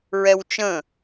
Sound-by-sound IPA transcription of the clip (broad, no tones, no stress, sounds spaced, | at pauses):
ɹ ɛ w t͡ʃ ə̃